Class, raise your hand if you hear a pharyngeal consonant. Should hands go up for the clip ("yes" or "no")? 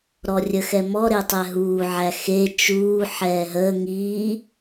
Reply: yes